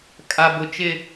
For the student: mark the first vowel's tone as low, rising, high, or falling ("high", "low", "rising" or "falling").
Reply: high